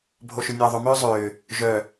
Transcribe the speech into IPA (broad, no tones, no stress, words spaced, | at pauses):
bʱoʃʏnʲɐːðˤʊ mʏːzˤʏː | ʒœ